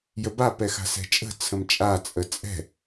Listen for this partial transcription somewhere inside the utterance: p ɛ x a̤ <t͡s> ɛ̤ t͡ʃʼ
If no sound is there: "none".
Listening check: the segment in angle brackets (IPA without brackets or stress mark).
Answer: s